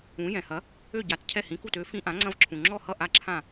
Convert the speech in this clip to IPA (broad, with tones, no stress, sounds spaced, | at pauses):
ũ˩˥ j ɛ̃˩ h ɐ˩˥ | ø˥˩ ɟ a˩˥ t cʰ ɛ˥˩ h ĩ˩˥ k u˥˩ t ø˩˥ f ĩ˧ ʔ ã˩˥ ŋ͡ǀ ɐ̃˧ v ǁʰ ũ˩ ŋ͡ǁ ɔ˥˩ h ʌ˥˩ ʔ a˥˩ ǁʰ ã˥˩